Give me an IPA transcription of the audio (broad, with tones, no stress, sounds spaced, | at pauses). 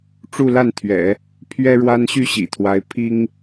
ʈ͡ʂ u˥˧ l a˥˩ n t̪ʰ ɥ ɛ̰˨˩˦ | pʰ ɥ ɛ˥ ɻ w a˥ n ɕ y˥˩ ɕ ḭ˨˩ t̪ʰ w a˧˥ ɪ̯ pʰ i˥ ŋ